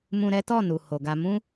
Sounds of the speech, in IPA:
m ũ˧ ɾ ɛ˦ t ɔ˦˨ n u˨ h o˨ ɡ a˧ m ũ˦

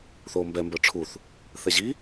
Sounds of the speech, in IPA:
θ oː m b ɛ m b ə˞ ʈ͡ʂʰ u θ | θ ɛ ʑ i

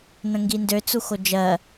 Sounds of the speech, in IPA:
n ə̃ ŋ ɡ i n d ø t͡s u x o d͡ʒ ɜ

